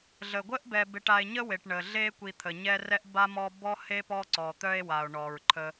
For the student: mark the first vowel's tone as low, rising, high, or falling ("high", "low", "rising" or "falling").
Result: low